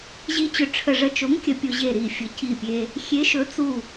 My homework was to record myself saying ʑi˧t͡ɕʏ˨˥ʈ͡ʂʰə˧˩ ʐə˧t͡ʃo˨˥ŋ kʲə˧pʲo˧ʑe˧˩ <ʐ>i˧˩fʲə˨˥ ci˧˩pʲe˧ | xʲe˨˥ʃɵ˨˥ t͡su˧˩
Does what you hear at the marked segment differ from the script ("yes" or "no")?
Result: yes